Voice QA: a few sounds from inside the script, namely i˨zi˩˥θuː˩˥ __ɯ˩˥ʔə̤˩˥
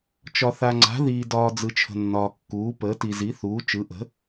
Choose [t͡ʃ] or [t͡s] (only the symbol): t͡ʃ